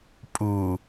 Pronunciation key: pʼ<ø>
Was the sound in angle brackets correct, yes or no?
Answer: no